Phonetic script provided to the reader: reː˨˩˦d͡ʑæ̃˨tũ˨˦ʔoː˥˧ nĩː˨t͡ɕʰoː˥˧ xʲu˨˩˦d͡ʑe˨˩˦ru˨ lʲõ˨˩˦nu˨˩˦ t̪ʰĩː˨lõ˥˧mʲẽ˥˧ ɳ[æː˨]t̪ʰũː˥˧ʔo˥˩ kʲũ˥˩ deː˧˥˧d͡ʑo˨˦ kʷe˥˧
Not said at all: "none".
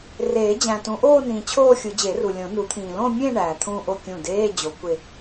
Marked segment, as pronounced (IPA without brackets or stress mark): æː˨